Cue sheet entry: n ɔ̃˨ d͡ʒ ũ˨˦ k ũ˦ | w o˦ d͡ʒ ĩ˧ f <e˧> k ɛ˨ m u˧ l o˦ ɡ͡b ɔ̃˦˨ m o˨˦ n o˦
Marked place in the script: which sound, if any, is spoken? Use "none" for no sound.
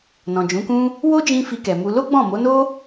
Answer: i˧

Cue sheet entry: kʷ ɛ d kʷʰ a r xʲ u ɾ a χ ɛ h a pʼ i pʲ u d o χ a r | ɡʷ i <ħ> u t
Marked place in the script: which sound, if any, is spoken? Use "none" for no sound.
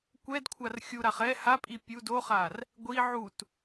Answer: ʕ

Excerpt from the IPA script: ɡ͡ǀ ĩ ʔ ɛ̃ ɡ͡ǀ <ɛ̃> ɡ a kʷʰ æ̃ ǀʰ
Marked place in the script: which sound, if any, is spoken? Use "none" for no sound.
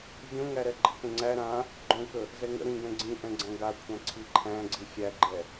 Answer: æ̃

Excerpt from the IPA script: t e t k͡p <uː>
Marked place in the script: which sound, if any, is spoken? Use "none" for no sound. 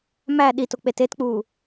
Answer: uː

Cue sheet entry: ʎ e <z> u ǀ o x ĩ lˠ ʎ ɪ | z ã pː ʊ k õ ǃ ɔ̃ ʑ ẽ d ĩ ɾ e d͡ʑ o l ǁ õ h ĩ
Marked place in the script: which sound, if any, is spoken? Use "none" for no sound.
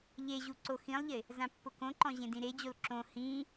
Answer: ʑ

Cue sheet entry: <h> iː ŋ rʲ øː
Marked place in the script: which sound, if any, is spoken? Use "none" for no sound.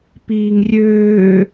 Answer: p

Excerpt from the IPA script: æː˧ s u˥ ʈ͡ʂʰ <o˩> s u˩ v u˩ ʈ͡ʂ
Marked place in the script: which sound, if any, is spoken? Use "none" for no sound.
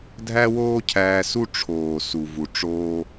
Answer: oː˩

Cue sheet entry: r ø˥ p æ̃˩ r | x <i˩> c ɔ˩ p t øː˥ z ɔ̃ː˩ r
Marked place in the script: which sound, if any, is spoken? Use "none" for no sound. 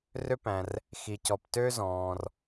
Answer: i˩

